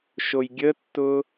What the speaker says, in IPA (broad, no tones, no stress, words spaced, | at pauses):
ʃojɡʲətːʊ